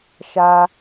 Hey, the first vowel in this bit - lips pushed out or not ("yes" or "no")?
no